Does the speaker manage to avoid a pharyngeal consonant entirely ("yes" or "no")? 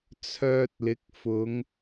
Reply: yes